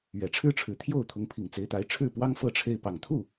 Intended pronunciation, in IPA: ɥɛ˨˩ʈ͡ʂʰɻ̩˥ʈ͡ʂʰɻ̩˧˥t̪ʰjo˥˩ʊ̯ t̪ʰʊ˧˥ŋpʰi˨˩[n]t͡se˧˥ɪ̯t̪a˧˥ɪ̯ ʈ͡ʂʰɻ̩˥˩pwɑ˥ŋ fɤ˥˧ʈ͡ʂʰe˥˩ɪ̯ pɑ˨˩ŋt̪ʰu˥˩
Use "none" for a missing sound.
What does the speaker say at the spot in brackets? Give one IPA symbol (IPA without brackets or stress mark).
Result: ŋ